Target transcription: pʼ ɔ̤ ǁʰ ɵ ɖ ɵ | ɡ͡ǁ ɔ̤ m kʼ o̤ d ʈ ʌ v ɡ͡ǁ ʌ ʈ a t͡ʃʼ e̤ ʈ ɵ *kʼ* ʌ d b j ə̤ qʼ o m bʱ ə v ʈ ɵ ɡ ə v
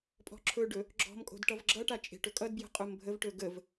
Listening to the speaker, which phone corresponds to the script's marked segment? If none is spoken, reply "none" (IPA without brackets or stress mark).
kʼ